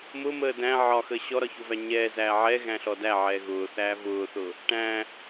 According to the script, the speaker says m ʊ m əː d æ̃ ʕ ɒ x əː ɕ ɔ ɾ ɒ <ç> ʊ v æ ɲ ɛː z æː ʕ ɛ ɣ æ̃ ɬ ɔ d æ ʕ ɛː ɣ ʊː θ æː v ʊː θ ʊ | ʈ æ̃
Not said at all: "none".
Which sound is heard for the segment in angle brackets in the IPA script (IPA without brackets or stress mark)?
ç